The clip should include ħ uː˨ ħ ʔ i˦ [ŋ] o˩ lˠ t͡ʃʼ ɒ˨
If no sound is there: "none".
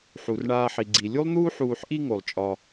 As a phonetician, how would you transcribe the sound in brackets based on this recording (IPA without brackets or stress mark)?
ŋ